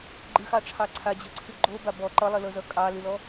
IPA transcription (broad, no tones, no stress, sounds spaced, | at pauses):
ɡ͡ǃ ɨ x ɑ ʈ͡ʂʰ ɑ ǀʰ a d͡ʑ ɤ ǀʰ ɨ ɡ͡ǃ o b a b ɔ ǃ ʌ lˠ i l ɤ z ʌ kʼ ɑ l ɨ l ɔ